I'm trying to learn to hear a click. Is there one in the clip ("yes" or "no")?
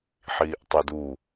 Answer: no